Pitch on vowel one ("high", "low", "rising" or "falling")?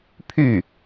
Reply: falling